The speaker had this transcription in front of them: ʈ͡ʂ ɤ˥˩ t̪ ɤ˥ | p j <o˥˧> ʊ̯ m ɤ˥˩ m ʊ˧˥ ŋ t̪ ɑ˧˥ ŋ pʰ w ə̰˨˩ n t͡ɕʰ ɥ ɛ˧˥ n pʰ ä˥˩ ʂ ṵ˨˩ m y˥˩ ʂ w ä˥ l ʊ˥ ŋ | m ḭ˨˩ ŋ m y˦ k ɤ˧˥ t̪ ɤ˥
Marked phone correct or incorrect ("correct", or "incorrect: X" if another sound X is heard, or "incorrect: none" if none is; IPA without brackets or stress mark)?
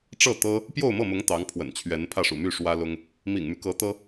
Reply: correct